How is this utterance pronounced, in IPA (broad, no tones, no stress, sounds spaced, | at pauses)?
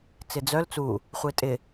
t͡s ɪ d͡z œ l t͡s u | χʷ e tʼ ɪ